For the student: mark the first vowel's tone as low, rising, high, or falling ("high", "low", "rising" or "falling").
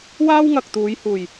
high